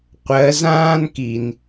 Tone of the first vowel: rising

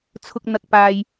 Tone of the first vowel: low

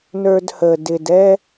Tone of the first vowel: high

